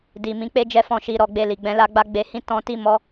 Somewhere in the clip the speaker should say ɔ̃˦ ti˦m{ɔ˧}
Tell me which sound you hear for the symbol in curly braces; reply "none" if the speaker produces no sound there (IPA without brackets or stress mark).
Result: ɔ˦